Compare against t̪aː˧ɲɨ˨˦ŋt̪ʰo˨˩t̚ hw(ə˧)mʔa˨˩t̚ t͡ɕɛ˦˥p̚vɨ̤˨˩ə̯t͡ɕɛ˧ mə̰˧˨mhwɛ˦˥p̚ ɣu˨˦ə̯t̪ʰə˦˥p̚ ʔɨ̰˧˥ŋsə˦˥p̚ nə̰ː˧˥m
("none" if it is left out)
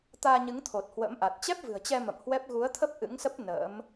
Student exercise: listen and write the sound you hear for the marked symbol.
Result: ə̰˧˥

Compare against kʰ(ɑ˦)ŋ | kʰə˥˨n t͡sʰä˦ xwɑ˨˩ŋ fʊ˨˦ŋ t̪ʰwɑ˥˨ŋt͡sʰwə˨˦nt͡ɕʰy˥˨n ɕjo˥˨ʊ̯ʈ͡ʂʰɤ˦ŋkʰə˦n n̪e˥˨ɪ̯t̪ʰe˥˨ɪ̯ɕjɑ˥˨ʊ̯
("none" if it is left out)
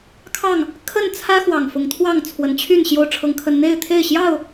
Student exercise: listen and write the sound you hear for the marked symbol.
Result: ɑ˥˨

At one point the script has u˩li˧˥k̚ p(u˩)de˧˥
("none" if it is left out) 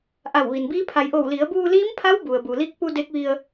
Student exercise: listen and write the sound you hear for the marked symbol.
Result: u˧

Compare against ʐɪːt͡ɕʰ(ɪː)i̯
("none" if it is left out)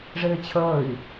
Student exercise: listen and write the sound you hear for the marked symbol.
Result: əː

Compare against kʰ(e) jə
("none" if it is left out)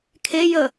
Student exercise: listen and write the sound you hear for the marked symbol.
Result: e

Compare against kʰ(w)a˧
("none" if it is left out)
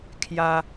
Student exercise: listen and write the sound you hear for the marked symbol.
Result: j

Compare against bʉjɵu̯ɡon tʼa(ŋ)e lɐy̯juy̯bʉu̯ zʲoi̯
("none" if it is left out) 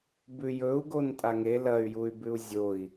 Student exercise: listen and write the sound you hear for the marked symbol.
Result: ŋ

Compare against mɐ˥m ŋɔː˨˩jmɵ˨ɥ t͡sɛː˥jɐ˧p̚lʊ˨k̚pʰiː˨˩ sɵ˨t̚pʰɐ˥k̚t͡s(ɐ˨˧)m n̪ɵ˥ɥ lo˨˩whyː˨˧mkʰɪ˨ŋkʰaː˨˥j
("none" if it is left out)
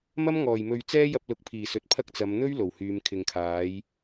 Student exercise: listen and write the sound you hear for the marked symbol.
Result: ɐ˨˧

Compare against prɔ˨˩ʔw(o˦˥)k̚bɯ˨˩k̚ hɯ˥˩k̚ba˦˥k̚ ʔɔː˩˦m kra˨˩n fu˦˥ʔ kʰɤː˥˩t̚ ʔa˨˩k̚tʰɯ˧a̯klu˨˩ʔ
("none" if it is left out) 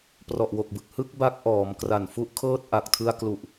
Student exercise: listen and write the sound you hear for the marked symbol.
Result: o˨˩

